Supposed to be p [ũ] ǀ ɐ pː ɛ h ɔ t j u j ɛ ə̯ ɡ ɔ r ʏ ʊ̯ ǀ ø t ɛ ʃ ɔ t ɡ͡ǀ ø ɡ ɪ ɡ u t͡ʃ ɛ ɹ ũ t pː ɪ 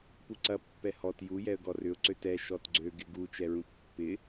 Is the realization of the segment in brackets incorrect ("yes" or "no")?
yes